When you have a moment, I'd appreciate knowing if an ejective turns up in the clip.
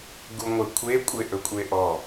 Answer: yes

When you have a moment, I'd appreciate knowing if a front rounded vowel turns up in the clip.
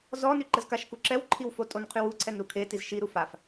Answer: yes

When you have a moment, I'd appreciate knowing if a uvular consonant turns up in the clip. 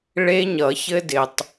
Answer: no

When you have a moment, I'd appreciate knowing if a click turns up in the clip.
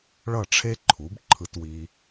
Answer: yes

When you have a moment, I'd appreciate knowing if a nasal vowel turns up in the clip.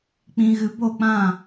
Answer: yes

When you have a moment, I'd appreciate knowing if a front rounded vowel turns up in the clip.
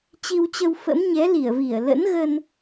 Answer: no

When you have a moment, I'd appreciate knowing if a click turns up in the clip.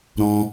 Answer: no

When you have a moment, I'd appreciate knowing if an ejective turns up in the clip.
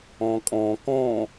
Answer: yes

